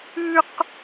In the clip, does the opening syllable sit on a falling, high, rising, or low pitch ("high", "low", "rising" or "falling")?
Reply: high